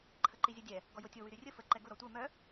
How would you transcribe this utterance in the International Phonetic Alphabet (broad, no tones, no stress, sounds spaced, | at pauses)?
ǃʰ ə ǃ i zʲ ʊ dʲ ɛ | ɡ ɔ j o tʲ o w y ɾ y rʲ ə f ə ǃ ɛ ɡ ʊ ɾ ɔ tʷ ɜ m œ